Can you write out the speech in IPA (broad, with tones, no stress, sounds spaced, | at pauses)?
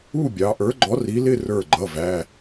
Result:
u˥˨ bʲ ɑ˩˧ ʔ ə˞˨˥ ɡ͡ǃ ɔ˨˥ r i˨˥ l ɪ˥˨ r ə˞˧˩ ɡ͡ǃ ʌ˩˧˩ v æ˩˧˩